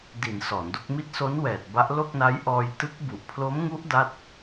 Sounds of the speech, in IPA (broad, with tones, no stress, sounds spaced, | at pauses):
d i˩˦ n s ɔː˩˦ n d o˦˥ k̚ m i˦˥ t̚ s o˦˥ n w ɛː˨˩ t̚ b a˦˥ ʔ l o˥˩ k̚ n a˦˥ j ʔ ɔː˧ j t ɯ˦˥ k̚ b u˨˩ ʔ pʰ l o˦˥ m ŋ u˦˥ ʔ d a˥˩ t̚